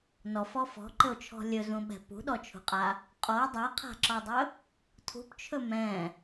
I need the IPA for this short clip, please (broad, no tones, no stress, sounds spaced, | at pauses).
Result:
n ɔ f ɔ f ɔ̤ ǃ ɘ o̯ t͡ʃʰ ɔ̤ lʲ ɵ z ũ ɓ ɛ̤ p ṳ ɗ ɔ t͡ʃʰ ṳ qʼ a | qʼ ɔ o̯ dˤ a qʰ a̤ ǁ ɔ dˤ ɵ | tʰ ṳ p t͡ʃʰ ɵ m ɛ̃